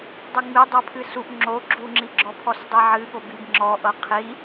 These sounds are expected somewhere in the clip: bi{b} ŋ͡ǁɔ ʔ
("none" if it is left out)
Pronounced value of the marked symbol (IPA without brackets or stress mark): b